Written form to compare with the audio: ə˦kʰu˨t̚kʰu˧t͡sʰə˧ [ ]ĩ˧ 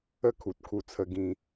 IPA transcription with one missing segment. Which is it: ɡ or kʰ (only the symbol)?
ɡ